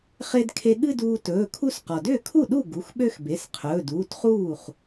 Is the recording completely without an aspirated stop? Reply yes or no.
no